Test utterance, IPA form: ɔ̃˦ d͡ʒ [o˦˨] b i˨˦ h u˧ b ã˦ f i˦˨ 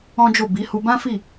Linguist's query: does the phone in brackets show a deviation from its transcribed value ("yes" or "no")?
no